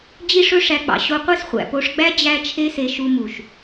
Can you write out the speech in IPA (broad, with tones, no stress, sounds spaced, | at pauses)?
d͡ʑ i˦ ʂ ɵ˦ ʂ æ˧ k͡p ɑ̰˨ ɕ o˧ qʷ e˦ s χʷ æ̰˨ p o˧ ʂ ɡ͡b æ˦ d͡ʑ æ˦ t͡ʃʰ e˦ s e˧ ʃ u˧ m u˨ ʃ